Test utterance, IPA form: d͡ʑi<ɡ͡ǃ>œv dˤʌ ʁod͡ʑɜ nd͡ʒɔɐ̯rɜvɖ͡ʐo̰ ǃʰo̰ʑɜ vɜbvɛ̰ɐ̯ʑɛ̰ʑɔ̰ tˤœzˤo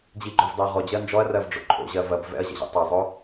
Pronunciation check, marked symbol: correct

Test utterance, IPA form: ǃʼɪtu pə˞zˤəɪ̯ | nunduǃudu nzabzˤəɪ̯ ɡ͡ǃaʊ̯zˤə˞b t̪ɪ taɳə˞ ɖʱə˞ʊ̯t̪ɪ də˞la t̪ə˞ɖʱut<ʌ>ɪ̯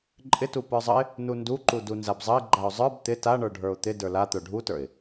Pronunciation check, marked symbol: incorrect: ə˞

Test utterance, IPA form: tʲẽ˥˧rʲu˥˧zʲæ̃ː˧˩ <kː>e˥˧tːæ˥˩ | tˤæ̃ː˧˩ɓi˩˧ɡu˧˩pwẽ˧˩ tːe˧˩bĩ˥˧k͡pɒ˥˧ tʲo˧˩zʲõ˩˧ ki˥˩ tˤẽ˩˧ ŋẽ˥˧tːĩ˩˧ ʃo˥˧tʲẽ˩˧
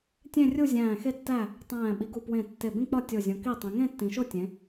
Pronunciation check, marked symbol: incorrect: x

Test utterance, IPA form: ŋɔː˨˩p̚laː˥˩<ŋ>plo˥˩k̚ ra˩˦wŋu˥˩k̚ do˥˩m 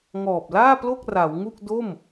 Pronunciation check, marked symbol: incorrect: none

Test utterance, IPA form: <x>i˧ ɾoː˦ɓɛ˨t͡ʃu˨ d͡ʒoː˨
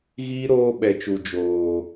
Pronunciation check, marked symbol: incorrect: ɣ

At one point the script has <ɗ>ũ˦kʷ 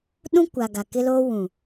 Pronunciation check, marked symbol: correct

